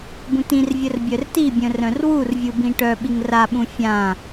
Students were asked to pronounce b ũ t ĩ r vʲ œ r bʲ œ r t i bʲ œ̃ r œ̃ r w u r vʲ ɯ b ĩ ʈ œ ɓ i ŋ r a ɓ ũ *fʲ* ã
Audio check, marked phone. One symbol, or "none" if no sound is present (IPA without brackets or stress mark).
fʲ